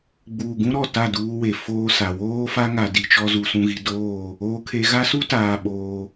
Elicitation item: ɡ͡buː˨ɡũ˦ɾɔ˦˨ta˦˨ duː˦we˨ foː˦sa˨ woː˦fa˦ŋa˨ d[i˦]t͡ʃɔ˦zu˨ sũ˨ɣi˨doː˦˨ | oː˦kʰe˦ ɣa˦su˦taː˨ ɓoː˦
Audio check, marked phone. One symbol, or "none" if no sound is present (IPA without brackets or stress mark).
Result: i˨